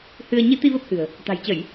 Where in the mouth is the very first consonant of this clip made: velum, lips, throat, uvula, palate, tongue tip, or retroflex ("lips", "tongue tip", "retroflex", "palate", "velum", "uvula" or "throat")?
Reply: throat